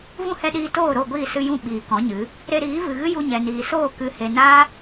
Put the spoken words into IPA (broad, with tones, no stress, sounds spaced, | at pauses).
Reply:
v ũ˦ h ɛ˧ ɗ iː˧ t oː˦˨ ɾ o˦˨ ɡʷ iː˦˨ s ɨ˧ j ũ˦˨ ɓ iː˨ k ɔ̃˨˦ ɲ ɨ˨˦ | ɾ e˧ ɾ iː˨˦ v ɨ˨ ɣ ɨ˦ j u˧ ɲ ɛ˨ n iː˨ s oː˦˨ k ɨ˨ h e˨ n aː˦